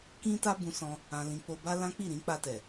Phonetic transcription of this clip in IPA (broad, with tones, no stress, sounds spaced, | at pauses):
k ĩ˦ t a˦ b ũ˧ s ɔ̃˧ | ã˧ l ĩ˧ k͡p o˧ b a˦ l ã˦ k͡p i˦˨ ɾ ĩ˨˦ k͡p a˧ t ɛ˨